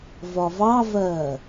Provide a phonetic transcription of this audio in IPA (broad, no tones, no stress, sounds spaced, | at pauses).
v ɒ v ɑ v ɜ